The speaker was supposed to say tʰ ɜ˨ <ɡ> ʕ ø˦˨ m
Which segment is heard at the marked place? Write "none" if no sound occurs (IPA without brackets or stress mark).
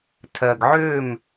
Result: ɡ